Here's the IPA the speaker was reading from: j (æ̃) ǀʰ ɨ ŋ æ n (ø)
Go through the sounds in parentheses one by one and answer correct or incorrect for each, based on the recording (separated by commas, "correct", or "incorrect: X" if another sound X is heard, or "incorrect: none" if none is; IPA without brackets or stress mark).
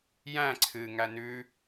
correct, incorrect: ʉ